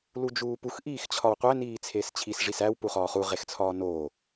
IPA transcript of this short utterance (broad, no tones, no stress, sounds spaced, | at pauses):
l u d͡ʒ uː p u x ʔ iː x t͡ɕʰ ɒ w qʷ æ n iː t͡sʰ eː s t͡ɕʰ i s ʐ i s æ w p u χ ɒː χ u ʁ e x t͡sʰ ɒː n oː